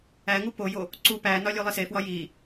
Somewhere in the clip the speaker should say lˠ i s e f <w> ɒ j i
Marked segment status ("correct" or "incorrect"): correct